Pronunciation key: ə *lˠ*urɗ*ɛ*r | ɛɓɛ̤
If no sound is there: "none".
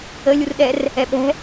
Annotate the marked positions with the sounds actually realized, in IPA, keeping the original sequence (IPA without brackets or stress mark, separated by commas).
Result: lʲ, ɛ